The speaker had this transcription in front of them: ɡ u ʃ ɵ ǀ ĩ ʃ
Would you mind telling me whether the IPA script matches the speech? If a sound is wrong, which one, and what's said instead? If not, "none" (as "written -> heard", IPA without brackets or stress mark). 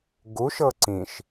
ɵ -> ɤ